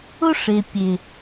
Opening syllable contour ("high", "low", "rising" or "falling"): high